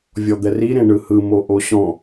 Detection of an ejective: absent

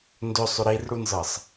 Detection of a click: absent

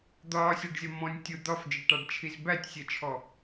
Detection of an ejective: absent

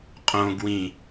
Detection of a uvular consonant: present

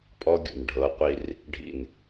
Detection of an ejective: present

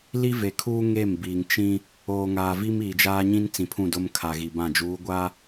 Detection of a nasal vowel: present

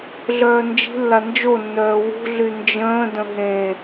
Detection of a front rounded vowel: present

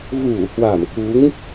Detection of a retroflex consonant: absent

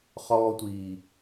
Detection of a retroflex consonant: absent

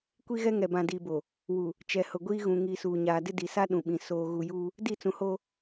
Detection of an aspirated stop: absent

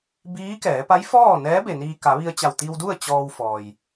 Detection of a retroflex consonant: absent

